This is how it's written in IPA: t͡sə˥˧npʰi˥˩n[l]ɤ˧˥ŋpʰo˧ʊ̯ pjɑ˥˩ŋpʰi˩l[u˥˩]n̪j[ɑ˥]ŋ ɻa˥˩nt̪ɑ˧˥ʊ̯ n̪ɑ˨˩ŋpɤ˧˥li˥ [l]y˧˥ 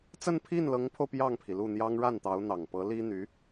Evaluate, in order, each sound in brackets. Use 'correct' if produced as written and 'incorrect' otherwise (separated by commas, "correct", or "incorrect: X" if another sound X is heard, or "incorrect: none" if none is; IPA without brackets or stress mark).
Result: correct, correct, correct, incorrect: n̪